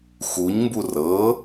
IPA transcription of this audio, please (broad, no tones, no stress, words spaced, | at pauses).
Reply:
xuɲmbu rɤ